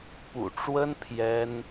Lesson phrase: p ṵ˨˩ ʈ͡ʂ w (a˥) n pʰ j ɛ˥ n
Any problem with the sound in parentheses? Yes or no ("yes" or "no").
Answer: yes